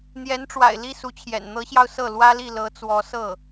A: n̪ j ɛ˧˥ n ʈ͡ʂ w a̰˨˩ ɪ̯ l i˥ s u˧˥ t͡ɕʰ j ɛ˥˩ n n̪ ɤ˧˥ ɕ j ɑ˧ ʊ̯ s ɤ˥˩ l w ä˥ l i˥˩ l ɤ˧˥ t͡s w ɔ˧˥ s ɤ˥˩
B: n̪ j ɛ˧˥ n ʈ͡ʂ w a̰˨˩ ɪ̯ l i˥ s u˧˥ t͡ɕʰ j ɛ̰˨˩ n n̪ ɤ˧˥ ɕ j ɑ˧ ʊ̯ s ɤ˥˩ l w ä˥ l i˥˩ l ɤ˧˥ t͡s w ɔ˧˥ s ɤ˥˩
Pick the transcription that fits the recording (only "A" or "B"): B